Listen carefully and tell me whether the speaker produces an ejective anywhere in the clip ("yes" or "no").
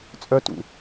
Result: yes